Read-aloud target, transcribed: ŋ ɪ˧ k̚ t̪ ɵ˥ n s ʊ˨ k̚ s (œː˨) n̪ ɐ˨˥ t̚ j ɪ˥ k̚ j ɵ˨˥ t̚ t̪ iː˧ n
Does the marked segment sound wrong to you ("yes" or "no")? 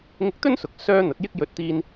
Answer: yes